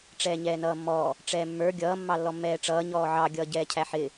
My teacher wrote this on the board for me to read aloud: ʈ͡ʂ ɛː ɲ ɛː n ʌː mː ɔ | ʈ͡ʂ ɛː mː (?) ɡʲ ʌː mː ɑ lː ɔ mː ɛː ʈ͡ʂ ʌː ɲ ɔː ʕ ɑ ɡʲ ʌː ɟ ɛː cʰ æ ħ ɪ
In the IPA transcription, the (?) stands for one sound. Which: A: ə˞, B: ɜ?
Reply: A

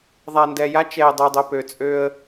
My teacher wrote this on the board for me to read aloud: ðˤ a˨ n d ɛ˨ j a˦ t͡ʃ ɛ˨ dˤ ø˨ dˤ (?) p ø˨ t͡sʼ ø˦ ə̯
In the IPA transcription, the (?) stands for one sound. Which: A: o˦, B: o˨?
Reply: B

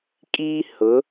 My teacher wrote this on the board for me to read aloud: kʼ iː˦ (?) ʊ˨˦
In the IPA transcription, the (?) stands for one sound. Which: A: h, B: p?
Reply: A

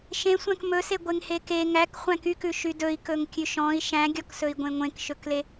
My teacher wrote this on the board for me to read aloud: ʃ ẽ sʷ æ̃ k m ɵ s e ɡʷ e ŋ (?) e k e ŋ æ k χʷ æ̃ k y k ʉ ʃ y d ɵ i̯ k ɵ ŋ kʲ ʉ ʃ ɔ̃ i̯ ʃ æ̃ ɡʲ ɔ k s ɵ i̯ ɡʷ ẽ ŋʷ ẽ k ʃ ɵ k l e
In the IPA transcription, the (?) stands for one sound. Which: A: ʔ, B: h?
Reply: B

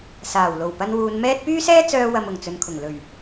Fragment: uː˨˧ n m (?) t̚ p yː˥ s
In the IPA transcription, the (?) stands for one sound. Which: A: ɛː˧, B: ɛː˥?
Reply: B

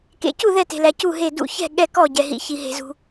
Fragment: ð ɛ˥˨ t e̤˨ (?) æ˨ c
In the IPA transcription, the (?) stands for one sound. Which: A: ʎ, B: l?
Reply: B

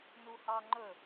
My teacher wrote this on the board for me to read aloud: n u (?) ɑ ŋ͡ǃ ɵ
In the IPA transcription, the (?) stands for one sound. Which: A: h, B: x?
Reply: A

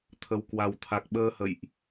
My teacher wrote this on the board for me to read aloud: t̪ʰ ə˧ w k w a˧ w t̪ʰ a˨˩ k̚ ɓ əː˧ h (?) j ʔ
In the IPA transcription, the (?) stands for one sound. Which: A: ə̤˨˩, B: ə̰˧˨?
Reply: B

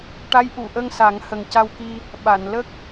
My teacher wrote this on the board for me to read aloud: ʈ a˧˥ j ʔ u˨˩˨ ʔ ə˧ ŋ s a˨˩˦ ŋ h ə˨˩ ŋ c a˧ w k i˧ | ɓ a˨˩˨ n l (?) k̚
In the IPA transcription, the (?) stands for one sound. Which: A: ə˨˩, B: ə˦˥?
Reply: B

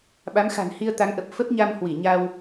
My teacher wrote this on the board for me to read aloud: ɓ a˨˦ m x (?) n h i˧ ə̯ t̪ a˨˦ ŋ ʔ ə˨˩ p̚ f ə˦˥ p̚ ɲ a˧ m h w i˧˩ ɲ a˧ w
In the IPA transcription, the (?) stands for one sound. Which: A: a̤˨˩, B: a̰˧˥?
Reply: A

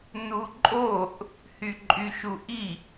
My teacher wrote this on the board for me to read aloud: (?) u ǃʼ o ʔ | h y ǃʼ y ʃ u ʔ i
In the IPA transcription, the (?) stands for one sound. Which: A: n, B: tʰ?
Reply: A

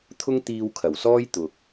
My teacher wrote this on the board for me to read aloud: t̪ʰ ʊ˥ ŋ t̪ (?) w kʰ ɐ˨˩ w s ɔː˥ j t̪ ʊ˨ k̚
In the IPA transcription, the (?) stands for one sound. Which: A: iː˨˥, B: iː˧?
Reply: B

